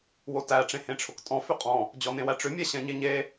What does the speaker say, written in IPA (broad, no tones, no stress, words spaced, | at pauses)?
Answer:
wotæ ʈ͡ʂẽhẽʈ͡ʂʰʊktʼɔ̃ fʏqʼɔ̃ | d͡ʑɔnẽwæʈ͡ʂʏ mʲɛɕɛ̃ɲeɲe